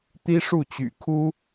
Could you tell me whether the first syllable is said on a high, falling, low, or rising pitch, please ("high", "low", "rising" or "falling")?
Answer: high